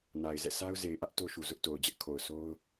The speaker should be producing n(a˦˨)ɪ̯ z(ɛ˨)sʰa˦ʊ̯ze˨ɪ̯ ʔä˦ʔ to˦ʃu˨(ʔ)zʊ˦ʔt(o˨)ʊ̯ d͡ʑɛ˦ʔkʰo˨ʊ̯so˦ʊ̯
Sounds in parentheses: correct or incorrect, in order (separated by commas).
incorrect, incorrect, incorrect, correct